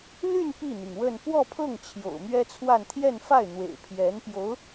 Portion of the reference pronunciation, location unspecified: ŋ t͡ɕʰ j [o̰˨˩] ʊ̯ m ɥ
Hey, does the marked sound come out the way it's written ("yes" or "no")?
yes